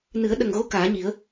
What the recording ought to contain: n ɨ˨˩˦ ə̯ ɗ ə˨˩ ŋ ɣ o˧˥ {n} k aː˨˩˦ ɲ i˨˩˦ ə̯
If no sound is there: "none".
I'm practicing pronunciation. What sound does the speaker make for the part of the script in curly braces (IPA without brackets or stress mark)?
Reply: none